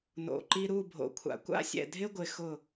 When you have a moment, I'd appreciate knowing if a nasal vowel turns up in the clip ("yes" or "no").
no